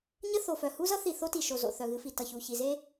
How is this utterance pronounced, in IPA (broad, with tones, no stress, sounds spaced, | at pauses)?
ɲ ə˦ θ o˨ f œ˨ h u˦ z ʌ˦ θ i˨ θ o˦ t i˨ ʃ o˨ z o̰˨ θ œ˨ ɣ ɨ˨˦ f i˨ t ʌ˨ ç u˨ ç i˨ z e˦